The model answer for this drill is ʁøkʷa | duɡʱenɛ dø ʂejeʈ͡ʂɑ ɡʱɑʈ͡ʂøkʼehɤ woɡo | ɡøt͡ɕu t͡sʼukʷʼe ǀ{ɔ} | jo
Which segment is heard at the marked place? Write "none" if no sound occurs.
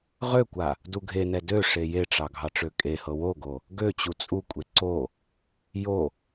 o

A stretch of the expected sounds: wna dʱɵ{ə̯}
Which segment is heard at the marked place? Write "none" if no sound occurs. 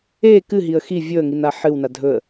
ə̯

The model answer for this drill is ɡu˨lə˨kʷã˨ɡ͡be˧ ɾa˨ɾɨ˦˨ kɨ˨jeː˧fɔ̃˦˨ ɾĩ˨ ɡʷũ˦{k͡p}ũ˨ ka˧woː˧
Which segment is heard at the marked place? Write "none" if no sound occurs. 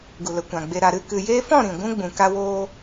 ɡ͡b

